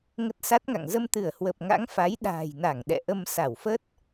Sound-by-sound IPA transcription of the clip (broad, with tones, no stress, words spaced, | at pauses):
ŋə˦˥t̚sa˦˥t̚ŋa̰˧˨ŋ zə˧mt̪ɨ˧˩ə̯hwə˨˩p̚ŋa̰˧˥ŋ fa˨˦j ɗa̤ː˨˩jna˧˩ŋ ɗɛ̰˧˨ʔə˧m sa˧˩wfə˦˥t̚